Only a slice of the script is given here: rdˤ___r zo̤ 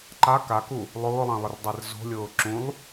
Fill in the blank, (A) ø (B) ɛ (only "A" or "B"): B